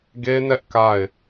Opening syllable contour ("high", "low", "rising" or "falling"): high